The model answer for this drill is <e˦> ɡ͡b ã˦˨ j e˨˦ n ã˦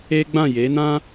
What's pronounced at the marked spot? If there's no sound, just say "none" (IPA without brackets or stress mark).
e˦